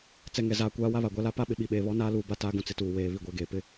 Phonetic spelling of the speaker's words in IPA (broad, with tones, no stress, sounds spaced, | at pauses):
t͡s ɛ˨ ŋ ɛ˨ z aː˨ kʷ aː˦ w a˦ β a˨ ɡʷ a˦ l a˦ p a˦ ɓ ɪ˨ ɓ i˨ ɓ eː˨ β ɔ˦ n aː˦ l uː˨ b a˦ t aː˦ ɡ ũ˨ t͡s ɪ˨ t uː˨ w eː˨ β i˨ ɡʷ ɛ˨ ɡ eː˨ p ɪ˦